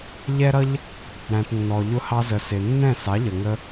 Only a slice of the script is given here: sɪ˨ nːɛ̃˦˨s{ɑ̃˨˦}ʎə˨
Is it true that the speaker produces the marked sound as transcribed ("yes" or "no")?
no